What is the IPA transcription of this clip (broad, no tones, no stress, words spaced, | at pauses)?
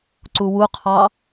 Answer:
ǀuwuqʰɑ